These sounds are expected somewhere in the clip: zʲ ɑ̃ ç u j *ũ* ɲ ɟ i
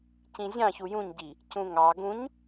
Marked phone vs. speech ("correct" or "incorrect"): correct